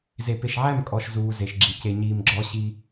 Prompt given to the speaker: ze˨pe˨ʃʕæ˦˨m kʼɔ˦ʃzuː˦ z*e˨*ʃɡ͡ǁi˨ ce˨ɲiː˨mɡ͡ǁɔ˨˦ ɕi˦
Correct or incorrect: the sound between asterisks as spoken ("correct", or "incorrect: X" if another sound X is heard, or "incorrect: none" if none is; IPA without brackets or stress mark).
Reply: correct